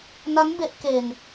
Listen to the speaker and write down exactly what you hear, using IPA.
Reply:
n a˦˥ n b e˦˥ ʔ k e˧ n

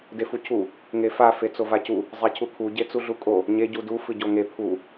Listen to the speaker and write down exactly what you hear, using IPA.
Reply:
d e f u cʰ u | ŋ e f a f e t͡s o v a c u | zˤ e cʰ u kʰ u ɟ e t͡s u ɮ u kʼ o | ɲ e ɟ u d u f ɨ ɟ o ŋ e pʰ u

